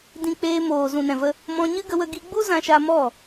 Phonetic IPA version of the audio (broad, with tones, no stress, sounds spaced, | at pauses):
d ĩ˧ k͡p eː˧ m oː˨ z ũ˨ n ɛ̃˨ v ə˧ | m ɔ̃˧ ɲ ɨ˦ ɡ ə˧ w ə˧ ɡ i˧ ɡ͡b u˦ z ã˧ ʃ a˧ m ɔ˦˨